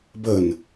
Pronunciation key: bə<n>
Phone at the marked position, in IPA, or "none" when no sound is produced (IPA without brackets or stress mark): n